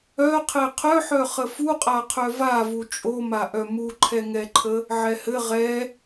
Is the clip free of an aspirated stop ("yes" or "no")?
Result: no